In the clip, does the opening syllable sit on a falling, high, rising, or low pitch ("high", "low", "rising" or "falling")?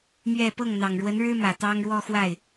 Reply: falling